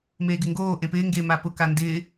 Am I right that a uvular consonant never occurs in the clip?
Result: yes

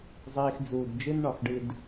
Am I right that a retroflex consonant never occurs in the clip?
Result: no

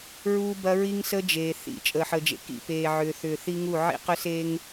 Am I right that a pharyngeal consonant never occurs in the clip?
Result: no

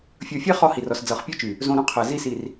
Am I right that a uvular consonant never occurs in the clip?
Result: no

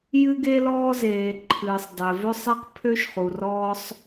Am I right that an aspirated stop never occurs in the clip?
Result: no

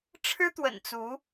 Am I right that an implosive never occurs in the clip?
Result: yes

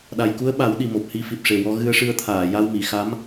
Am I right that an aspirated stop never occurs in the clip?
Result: no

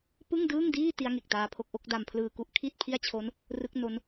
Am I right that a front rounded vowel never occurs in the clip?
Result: yes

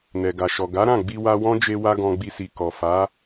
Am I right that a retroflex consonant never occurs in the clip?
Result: yes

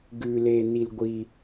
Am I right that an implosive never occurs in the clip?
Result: yes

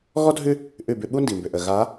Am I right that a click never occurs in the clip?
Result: yes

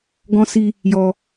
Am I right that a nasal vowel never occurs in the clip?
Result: no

